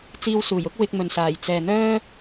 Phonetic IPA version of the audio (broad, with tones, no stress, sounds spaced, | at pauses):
t͡s iː˧ w s uː˨˩ j ʊ˥ k̚ w ɪ˧ k̚ m ɵ˨ n s aː˨˩ j t͡s ɛː˨ n̪ œː˥